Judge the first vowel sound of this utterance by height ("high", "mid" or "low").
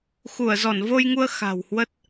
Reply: high